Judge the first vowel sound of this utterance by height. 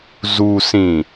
high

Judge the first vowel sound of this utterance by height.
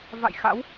low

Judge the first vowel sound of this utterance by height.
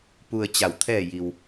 high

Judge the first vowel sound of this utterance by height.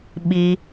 high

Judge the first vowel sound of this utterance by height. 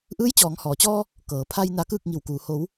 high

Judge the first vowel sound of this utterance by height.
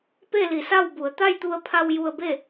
mid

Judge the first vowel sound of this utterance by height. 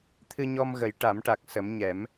high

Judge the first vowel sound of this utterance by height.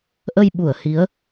mid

